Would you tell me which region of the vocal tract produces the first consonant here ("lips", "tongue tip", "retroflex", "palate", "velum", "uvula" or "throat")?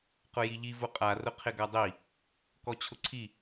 uvula